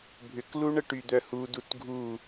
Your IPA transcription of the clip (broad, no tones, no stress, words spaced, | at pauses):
bʱʏkluɳə ʈyd̪œhudut ɡʱu